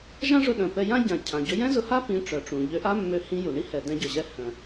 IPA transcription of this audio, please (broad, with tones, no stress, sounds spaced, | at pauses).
ʒ ã˥ ʐ ʊ˧ ɗ œ̃˩ p ɛ˧ j ã˥ ɟ ã˩ cʰ ã˩ ɟ ɵ˧ j ɛ̃˥ z ʊ˧ h a˥ p ĩ˧ ʈ͡ʂ œ˩ ʈ͡ʂ ũ˩ ʎ ø˧ ʔ a˥ mː ø˧ h ĩ˧ j u˩ ɳ i˥ h ɛ˩ d ɛ̃˧ ɟ œ˩ ʑ ɛ˧ h œ̃˩